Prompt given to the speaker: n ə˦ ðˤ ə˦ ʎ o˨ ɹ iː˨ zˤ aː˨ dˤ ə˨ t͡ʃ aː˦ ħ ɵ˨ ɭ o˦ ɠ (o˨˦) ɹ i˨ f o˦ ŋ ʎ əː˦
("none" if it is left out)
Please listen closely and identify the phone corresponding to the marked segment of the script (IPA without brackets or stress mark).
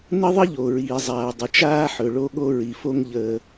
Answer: o˦